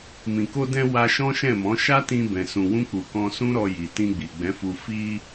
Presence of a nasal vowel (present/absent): present